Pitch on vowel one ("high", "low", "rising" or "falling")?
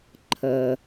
low